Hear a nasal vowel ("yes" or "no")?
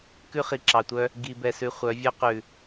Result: no